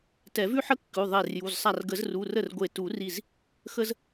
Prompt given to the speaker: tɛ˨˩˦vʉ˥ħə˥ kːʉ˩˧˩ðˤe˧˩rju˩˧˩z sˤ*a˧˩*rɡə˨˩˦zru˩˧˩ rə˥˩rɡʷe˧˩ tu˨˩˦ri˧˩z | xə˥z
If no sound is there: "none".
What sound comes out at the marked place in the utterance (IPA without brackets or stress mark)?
a˧˩